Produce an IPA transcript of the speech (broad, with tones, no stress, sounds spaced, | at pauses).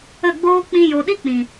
ə˦˨ ɡ͡b oː˦ k͡p ĩ˧ j o˨ ɗ i˦ k͡p ĩ˨